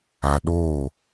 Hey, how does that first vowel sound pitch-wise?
low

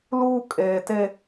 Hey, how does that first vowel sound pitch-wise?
high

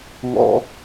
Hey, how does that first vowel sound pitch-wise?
high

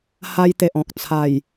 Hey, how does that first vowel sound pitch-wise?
high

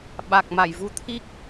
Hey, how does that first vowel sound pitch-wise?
low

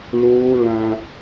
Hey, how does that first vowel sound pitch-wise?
high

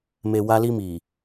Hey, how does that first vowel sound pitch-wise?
low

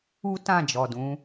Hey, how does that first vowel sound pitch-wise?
high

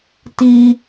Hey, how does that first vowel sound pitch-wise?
high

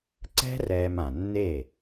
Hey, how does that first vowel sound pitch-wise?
high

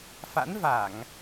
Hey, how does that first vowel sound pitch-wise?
rising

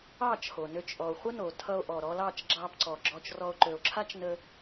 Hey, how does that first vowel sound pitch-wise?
falling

